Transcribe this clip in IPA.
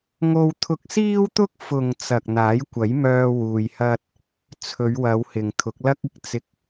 ŋ o˧ w t̪ʰ ʊ˧ k̚ s iː˥ w t̪ ʊ˥ k̚ f ʊ˨ ŋ t͡s ɐ˨ k̚ n̪ aː˨˥ j kʷ ɐ˨˥ j m œː˧ w uː˧ j h ɐ˥ t̚ | t͡sʰ ɵ˨˧ ɥ w ɐ˨˧ w h ɪ˨ ŋ t̪ʰ ʊ˨˥ k̚ l ɐ˥ k̚ ɪ˨ k̚ t͡s ɪ˧ k̚

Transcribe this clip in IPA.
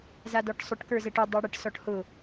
z a d ɔ ʈ sˤ ʊ ʈ k ə˞ z ɛ ʈ ʊ dˤ ɛ ɽ ə ʈ s ɔ ʈ h ʊ

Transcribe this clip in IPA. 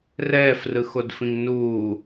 r ɛː f r ɯ x o d f ĩ ŋ n uː

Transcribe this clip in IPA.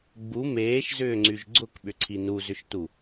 ɡ͡b u m eː ʃ z ʏː ŋ͡ǀ y ʒ ɡ͡ǀ ʊ k ɓ ʏ ǀʰ i n u z ʏ ʃ t u

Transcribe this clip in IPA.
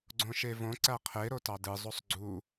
ɡ͡ǀ õ ʃ e v õ ǀ æ qʰ e ɾ o t ɑ d ɯ zˤ o sˤ ɡ͡ǀ u

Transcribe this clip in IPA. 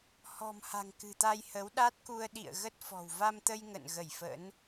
h ɔ̤˨˩ m h a̤˨˩ ŋ k ɨ̤˨˩ t̪ a˧ j h ə˨˦ w ɗ a˦˥ t̚ k u˧ ə̯ ɗ ḭ˧˨ ə̯ ɣ ə˦˥ t̚ f ɔ̤˨˩ w v a˧ m t̪ ə˧ j ŋ ə̰˧˨ n ɣ ə˧˩ j f ə̰˧˥ n

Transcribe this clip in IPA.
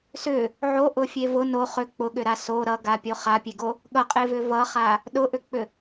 s ʏ | ʕ o ʔ ʊ fʲ e v ʊ n o χ ʏ k͡p ʊ ɠ ʏ ɾ a s o ɾ ʌ ɡ a pʲ o χ a pʲ e ɡ o | ɠ ʌ qʼ e v ʏ v ʌ χ a | ɗ ʊ ʔ ʏ k͡p ʏ

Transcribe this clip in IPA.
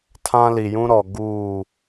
tʰ ã˦ l i˨ j ũ˦ ɾ ɔ˨ ɡ uː˦˨

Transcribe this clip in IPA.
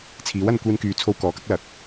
t͡sʰ iː˨˥ w ɐ˧ n kʷ iː˧ n k yː˨ t͡sʰ o˧ w k ɔː˨ k ɐ˥ k̚ l ɐ˨ k̚

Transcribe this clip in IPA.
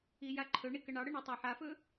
i j a ǃʰ ɵ ɳ i k ə ɳ ɑ ɽ ə ɳ ɵ tˤ ɑ ħ a f ɵ

